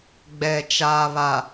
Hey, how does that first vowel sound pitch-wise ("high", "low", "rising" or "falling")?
low